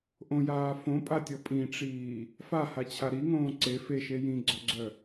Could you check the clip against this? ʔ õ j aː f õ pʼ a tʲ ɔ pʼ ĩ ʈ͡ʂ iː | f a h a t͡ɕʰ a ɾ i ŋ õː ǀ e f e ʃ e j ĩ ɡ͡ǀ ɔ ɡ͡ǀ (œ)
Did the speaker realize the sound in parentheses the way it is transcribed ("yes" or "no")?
yes